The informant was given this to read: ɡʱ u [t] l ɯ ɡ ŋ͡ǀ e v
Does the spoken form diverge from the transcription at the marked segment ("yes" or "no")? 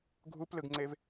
yes